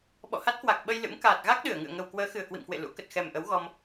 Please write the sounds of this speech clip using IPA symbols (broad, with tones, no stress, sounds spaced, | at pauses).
ɓ ɔ̰˧˨ h a˦˥ t̚ k w a˨˩ k̚ ɓ ə˧ j l ɨ̰˧˥ m k aː˨˩ t̚ ɣ a˦˥ k̚ ɗ ɨ˧˩ ə̯ ŋ ɨ̰˧˨ ə̯ ŋ ə˨˩ w k w əː˨˦ x ɨ˨˩ ə̯ k w ḭ˧˨ m k w ḛ˧˨ l ṵ˧˥ k ə˨˩ t̚ x ɛ˨˩ m ʔ ə˨˦ w ɣ ɔ˧ m